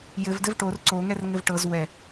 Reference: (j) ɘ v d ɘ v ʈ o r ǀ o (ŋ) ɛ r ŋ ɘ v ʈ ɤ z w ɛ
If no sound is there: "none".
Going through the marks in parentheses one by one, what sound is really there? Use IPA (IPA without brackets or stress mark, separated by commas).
j, ŋ